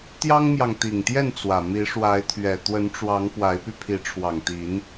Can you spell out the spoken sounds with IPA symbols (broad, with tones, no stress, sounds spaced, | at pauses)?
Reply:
t̪ j ɑ˦ ŋ m j ɑ˨ ŋ t̪ i˨˩ ŋ t̪ j ɛ˥˨ n t͡s w ä˨˩ m i˨˦ ʂ w a˨˦ ɪ̯ t̪ʰ ɥ ɛ˨˩ t̪ w ə˨˦ n ʈ͡ʂ w ɑ˨˦ ŋ p w a˨˦ ɪ̯ p y˧ pʰ i˨˦ ʈ͡ʂʰ w ɑ˨˩ ŋ t̪ i˨˦ n